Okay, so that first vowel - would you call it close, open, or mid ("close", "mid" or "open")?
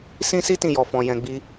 close